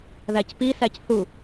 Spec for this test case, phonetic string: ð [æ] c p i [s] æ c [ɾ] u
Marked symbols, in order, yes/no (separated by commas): yes, yes, no